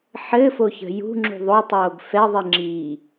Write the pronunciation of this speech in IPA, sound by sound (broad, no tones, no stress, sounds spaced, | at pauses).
ħ ɘ f o ç ə̤ j ṳ ŋ͡ǁ ṳ ðˤ o tˤ oː ɡ f ɛ ðˤ i ŋ͡ǁ i